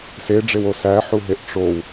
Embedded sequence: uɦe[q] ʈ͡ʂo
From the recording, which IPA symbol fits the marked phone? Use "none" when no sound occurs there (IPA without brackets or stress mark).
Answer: ʔ